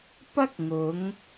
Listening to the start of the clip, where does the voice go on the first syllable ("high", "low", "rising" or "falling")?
high